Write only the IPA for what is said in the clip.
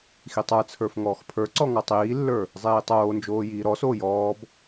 x i tˤ ə˞ t͡sʰ ə˞ f ŋ ɔː x pʰ ə˞ ǀ ɔ ŋ ɔ tˤ iː lː ə˞ | zˤ iː tˤ oː n d͡ʒ oː j iː ɾ ɔ s oː j ɔː b

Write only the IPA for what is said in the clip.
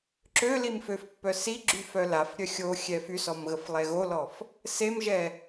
ǁ ø l i m f ø f pː œ s i ɡ͡ǁ y f œ l a f ɾʲ œ xʲ o xʲ ɛ f y s ɔ m ɣ ə f lˠ ɛ ɣ o l ɔ f | s e m ʒ ɛ

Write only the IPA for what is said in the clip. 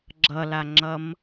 ɡ͡ǁ ʌ l a ŋ͡ǁ ʌ m

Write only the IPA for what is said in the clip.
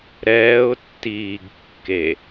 ɾ ɛː ʊ̯ tː iː ɡ kː e

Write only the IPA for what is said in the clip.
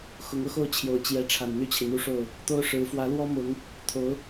x ʊ˧˥ ŋ ɤ˥˧ x o˥˩ ʊ̯ t͡ɕʰ j o˨˩ ʊ̯ t͡ɕ j ɛ˧˥ ʈ͡ʂʰ a˨˩ n n̪ y˥˩ t͡ɕʰ i˩ n̪ u˥˧ ʂ o˥˩ ʊ̯ | t̪ o˥ ʊ̯ ʂ ɻ̩˧˥ f w ä˧˥ l w ɔ˥ m ʊ˧˥ ŋ | t̪ʰ o˧˥ ʊ̯

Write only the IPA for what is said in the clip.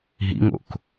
ɦ ḭ ŋ o̰ k

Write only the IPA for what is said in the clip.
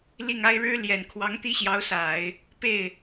l i˥˩ ŋ a˥ ɪ̯ ɻ ɻ̩˥ l j ɛ˨˩ n kʰ w ɑ˧˥ ŋ t̪ i˥˩ ɕ j ɑ˧˥ ʊ̯ s a˨˩˦ ɪ̯ | p e˥˩ ɪ̯

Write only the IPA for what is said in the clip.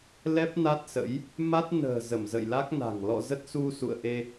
l ɛ˦˥ p̚ n a˦˥ t̚ s ə̰˧˥ j | m a˦˥ t̚ n ə̤ː˨˩ z ə˧˩ m z ə̰˧˨ j l a˦˥ k̚ n a̤˨˩ ŋ l ɔ̰˧˨ z ə˦˥ t̚ s u˧ s ṵ˧˨ ə̯ ʔ e˧

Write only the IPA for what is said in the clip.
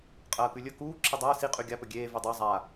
qʼ ɐː k ʉ lʲ ɵ k uː ǁʰ ɨ dˤ ɐː s i qʼ ʉ ɡʲ a p ɵ ɡʲ eː v u dˤ e zˤ a

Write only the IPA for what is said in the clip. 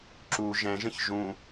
ǁ u ʒ ɛ̃ ʒ ə̃ ç ʒ ũ

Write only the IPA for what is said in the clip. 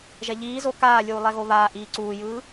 ʒ ɛ ʎ iː z o k aː lʲ uː lˠ ɛ ɣ o β aː ʔ iː ǀ uː j ɯː

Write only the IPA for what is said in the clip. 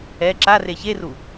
ɛ ǁ a r e ç e r u

